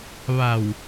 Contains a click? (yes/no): no